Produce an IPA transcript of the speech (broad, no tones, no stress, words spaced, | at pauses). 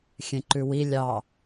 xʲẽǃʉwi lʲɑ